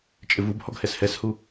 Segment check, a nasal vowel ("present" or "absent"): absent